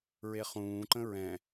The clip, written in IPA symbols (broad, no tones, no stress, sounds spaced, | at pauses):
ɹ e χ ũː ǃ ə̃ ɹ ɛ̃